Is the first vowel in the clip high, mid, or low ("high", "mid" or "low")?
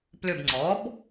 high